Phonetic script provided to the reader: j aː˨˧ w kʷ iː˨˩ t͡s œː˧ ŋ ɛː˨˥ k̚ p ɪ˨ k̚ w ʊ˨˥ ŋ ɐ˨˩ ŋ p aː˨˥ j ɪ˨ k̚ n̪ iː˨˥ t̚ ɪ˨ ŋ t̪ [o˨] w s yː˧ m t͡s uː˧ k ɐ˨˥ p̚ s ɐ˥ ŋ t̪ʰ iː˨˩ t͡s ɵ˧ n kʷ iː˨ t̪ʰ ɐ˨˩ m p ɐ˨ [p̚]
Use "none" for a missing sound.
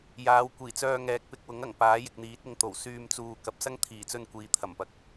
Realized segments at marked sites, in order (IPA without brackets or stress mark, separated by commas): o˨˩, k̚